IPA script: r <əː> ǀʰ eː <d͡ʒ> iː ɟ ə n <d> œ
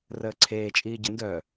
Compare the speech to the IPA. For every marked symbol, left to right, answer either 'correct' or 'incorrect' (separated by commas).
correct, incorrect, correct